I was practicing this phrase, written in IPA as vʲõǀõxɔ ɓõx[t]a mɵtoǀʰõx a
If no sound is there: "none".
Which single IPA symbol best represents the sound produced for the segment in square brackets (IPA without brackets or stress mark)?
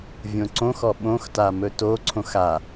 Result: t